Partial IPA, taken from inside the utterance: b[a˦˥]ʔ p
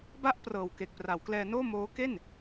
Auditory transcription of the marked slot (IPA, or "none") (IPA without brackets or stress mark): a˦˥